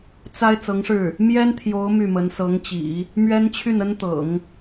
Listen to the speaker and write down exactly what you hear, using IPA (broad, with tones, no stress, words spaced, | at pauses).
t͡sa˥ɪ̯ t͡sɤ˧˥ŋʂɻ̩˥˩ | mjɛ˥nt̪ʰjo˧˥ʊ̯ my˥˩mə˧˥n sɤ˧˥ŋt͡ɕḭ˨˩˦ | mɥɛ˥nt͡ɕʰy˥˩nə˥nt̪ɤ̰˨˩˦ŋ